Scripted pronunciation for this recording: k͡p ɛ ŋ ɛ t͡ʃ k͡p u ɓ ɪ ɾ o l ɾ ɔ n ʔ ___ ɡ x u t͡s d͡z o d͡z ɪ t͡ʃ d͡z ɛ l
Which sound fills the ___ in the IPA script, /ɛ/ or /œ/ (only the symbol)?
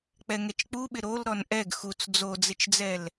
ɛ